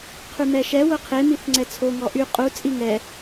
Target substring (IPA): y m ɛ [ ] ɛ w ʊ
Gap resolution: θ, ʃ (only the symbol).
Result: ʃ